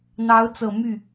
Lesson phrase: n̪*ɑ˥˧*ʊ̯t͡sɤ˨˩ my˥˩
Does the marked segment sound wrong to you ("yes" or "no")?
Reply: yes